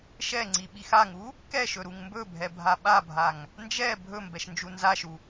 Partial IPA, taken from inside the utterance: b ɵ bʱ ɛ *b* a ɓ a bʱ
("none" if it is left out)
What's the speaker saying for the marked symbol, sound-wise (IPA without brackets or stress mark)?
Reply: bʱ